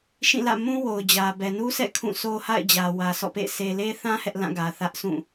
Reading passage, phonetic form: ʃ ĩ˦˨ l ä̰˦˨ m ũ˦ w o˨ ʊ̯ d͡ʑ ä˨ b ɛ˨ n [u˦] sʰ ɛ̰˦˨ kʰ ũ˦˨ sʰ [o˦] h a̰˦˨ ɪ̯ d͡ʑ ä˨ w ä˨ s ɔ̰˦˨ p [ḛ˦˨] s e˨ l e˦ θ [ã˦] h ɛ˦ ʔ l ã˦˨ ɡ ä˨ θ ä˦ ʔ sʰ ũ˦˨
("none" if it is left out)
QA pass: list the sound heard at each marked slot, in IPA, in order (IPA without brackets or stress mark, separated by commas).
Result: u˦, o˦, ḛ˦˨, ã˦